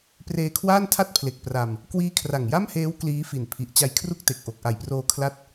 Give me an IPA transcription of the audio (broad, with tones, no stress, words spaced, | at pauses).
preː˧kʰwaː˥˩ntʰa˥˩t̚pʰle˨˩k̚ pra˧m | kwiː˦˥kʰra˨˩ŋja˥˩mheː˦˥w kliː˦˥fi˨˩n pʰi˨˩ʔ t͡ɕa˧jkʰru˥˩k̚te˨˩k̚ ʔo˨˩k̚ʔa˨˩jproː˧ kʰla˥˩t̚